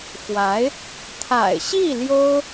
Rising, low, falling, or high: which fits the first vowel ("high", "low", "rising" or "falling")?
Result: rising